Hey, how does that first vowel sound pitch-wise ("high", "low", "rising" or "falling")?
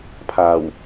low